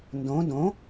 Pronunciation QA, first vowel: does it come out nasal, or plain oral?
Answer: nasal